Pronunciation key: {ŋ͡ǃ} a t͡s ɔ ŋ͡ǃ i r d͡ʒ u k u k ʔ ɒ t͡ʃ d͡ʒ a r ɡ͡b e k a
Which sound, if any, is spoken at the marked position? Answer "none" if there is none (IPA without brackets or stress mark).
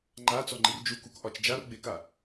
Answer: ŋ͡ǃ